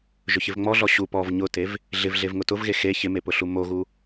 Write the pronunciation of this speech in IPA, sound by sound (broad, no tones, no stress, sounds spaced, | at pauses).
ʒ ʊ ç ɪ v ŋ͡m ɔ ɮ ɔ ɕ u p ɔ v ɲ ʊ t e v | ɮ ɪ v ɮ e v ŋ ʊ t ʊ v ɣ e x e ç ɪ m e p ʊ ɬ u m o ɣ u